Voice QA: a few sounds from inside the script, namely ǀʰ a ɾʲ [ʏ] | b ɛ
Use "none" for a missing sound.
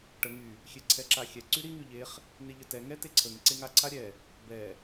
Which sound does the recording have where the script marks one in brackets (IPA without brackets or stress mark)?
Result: ɛ